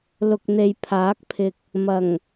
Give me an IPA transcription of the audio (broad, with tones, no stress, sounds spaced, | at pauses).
l ʊ˨ k̚ n̪ e˨ j pʰ aː˨˥ k̚ pʰ ɪ˨ k̚ | m ɐ˨˩ ŋ